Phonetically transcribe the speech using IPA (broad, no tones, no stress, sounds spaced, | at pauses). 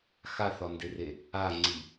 x a θ ɒ n d e r e | a ŋ͡ǀ i